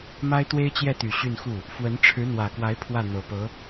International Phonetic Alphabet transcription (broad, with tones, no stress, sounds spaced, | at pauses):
m a˥ ɪ̯ t̪ w e˥ ɪ̯ t͡ɕ j ɛ˥˩ t̪ y˨˩ ɕ y˥˧ n x u˥˩ | f w ə˧˥ n ʈ͡ʂʰ ɻ̩˧˥ n̪ w ä˨˩ k w a˧˥ ɪ̯ pʰ w ä˥˩ n̪ ɤ˨˩ p ɤ˧˥